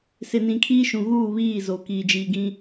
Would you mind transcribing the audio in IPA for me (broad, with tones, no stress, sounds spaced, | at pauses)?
s ɪ˨ n ĩ˨ kʰ iː˦ ʃ ũ˨ ɣ uː˦˨ β iː˦˨ z o˨ k iː˨ d͡ʒ iː˨ ɡ ĩ˦